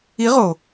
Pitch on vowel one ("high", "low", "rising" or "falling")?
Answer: rising